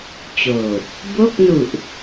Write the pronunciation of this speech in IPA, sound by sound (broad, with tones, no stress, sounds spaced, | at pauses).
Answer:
t͡ɕ oː˨˩ t̚ | b o˥˩ k̚ n u˨˩ ʔ